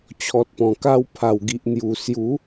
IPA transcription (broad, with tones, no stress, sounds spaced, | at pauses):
t͡ɕʰ ɔ˨ t̚ p ɔ̃˨˩ k a˧ w pʰ a˨˩ w ɡ i˨ ʔ n̪ j u˨˩ s j u˨˦